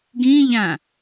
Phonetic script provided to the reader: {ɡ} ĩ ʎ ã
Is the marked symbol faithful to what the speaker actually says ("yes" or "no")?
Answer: yes